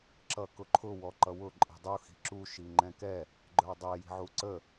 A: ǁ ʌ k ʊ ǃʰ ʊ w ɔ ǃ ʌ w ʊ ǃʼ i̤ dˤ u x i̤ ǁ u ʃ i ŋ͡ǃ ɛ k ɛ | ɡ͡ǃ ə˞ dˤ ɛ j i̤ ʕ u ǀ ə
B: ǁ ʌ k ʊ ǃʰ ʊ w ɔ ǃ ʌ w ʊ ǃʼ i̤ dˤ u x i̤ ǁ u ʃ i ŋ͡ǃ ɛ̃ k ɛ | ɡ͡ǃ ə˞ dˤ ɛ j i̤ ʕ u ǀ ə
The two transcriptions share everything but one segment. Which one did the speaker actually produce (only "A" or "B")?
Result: B